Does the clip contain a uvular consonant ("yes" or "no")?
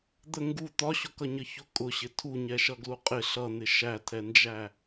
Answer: yes